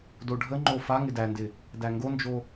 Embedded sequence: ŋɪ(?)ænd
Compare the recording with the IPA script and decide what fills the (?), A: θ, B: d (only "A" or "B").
B